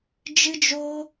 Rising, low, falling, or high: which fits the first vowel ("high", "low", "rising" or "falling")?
high